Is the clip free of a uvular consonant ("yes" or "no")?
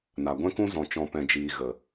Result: yes